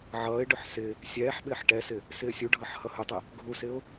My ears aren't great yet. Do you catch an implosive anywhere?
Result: yes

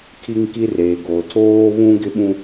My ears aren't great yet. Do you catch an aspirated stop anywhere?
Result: yes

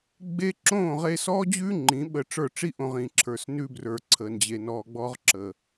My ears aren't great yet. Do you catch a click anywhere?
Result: yes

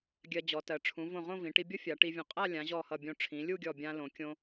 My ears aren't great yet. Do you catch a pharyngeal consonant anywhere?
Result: no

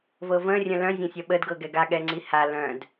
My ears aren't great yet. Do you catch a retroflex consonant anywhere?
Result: no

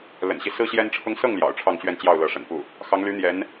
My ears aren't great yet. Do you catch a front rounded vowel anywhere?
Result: yes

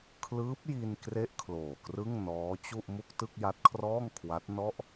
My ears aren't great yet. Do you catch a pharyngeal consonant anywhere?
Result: no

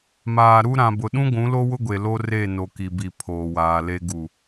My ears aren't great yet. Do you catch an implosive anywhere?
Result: yes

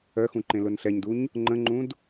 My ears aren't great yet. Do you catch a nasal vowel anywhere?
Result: yes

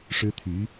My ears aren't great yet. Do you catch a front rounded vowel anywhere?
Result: yes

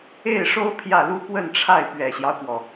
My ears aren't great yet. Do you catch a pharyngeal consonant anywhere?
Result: no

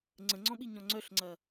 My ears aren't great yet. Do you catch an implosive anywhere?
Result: yes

